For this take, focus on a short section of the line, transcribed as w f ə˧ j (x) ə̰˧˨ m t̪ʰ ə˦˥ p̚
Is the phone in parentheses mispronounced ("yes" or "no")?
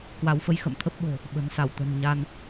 no